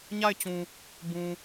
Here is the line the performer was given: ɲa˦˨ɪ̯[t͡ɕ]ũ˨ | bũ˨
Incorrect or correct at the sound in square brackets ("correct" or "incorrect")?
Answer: correct